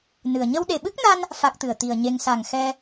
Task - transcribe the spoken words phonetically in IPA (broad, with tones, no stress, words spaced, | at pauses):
nɨ˨˩ə̯ ɲə˧wɗe˨˩ɓɨ˦˥k̚na˧n | fa˦˥k̚t̪ɨ˨˩ə̯ t̪i˨˩ə̯ɲe˧ŋ sa˨˩ŋ xɛ˧